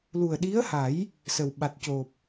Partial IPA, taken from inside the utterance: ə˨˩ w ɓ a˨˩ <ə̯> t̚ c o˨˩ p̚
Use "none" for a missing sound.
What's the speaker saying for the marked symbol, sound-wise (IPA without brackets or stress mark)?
none